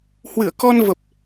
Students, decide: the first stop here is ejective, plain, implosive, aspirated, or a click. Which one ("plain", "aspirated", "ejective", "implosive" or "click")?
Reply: plain